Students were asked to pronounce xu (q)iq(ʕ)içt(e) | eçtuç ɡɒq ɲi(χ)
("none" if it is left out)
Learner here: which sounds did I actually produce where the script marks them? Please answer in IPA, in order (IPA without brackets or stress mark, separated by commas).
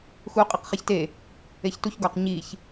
qʼ, χ, e, ç